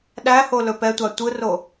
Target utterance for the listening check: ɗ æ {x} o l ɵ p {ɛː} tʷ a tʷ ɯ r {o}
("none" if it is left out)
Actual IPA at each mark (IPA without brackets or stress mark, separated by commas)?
h, ɛ, o